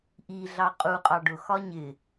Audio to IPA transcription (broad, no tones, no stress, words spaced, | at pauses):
ʔiɮɑ qʼuqʼɑ ɖʊxɒ ɲɪ